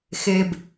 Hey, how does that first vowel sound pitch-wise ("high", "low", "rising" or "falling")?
low